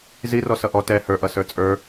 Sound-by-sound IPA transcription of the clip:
zirɔ sʌʔɔ tɛ hə˞ʔʌ sə˞t͡sʼə˞

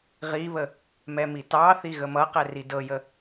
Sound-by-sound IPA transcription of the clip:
ʁiβə | mɛmitɑθi ɣəmʌ qɛridɤjə

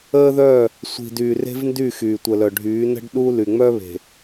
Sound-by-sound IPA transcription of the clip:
əː˦ðœ˦˨ | sʷi̤˨dyː˨ re̤˦vndy˦˨ xyː˨tʷə˨lœ˨ɖʱyː˨˦ nə̤˦ɖɗu˦ ly˨ŋ͡mœ˦βe̤˨

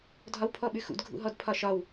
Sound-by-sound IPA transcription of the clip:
dʱɒwpʰɔɓʉxṵd ɡʱṵɦɔdpʰɒʃɒw

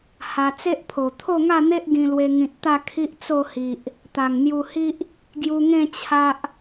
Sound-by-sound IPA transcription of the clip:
ha˧ t͡se˦ʔpʰo˨˩ t̪ʰo˥˧ŋa˥˧n̪e˦ʔ ɡĩ˧lwe˧ ŋĩ˨t̚t̪a˥˧ kʰi˦ʔt͡so˥˧ hi˨ʔ | t̪a˨˩ŋn̪ju˧hi˦ʔ | ɡju˧ŋẽ˥˧ t͡ɕʰa˦ʔ

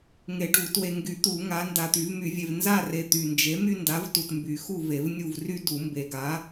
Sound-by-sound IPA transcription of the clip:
ŋe˨˩˦ɖu˨˩˦ twe˨ŋɡy˨˩˦t̪u˨˩˦ ŋa˨˥ nda˨t̪y˨˩˦vmy˨˩˦vʲe˨v nza˦˨re˨ t̪y˨nd͡ʒe˨˥ my˦nda˨˥vtu˨t mby˨˩˦xu˦˨ve˨˩˦v nʲu˦˨vry˦ du˨˩˦mbe˨ɡa˨˥

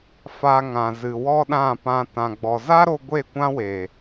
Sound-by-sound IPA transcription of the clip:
fa˧ ŋã˨ zɨ˨wɔ˦ɗã˦˨pã˧ tã˨ɡ͡bɔ˨ za˦ɾo˧ ɡʷe˦˨kʷã˦we˨

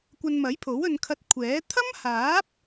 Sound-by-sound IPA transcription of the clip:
kʷɐ˧nmɐ˨˥jpʰo˨˥w ɵ˧nkʰɐ˧t̚kʷʰɛː˨˥ t̪ʰɐ˥mhaː˨˥p̚

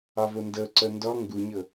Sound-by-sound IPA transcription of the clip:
ɑvondɤǀɤ ndɔ ŋɡuɲɤ

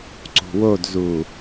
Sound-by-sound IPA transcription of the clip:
ǀṳwodzu

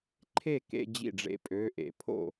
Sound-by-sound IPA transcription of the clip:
ǃʰe˥˩kḛ˧ d͡ʑḭ˥˩ɖ͡ʐḛ˥˩pʼø˧˥˧ ʔḛ˨˩˦pʰo̰˥˩

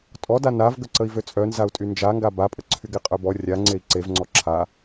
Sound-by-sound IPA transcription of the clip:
tʼɔda navɡə ǀəi̯vøt͡sʼœ nzau̯tʼynd͡ʒaŋɡa bapʼə ǀʰyɡeqʼœbɔ rʲa ŋ͡ǀei̯ǀev ŋ͡ǀɔǁʰa

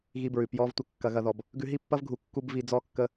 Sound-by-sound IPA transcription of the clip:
ɣi˧bɹʉ˨ pjɔ˧v tʷə˧kːɐ˧ɣɐ˧ðɔ˧b | ɡʉ˧ɦi˦pːɐ˦v ɡʱu˧kːu˦b vi˧d͡zɔ˦kːə˦

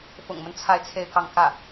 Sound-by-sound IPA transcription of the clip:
fʊ̰˨˩ŋmə˦n t͡sʰa˥˧ɪ̯t͡sʰe˥˧ɪ̯kɑ˥˧ŋ kä˥˩

